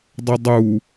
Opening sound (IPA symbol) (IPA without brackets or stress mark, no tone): dˤ